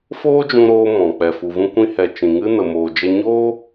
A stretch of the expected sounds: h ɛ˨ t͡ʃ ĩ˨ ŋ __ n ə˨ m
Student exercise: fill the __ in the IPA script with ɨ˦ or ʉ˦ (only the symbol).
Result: ɨ˦